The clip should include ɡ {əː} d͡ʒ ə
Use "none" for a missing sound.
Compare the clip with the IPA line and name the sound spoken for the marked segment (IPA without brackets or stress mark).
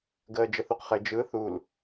əː